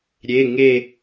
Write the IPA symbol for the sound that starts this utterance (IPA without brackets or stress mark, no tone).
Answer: ɾʲ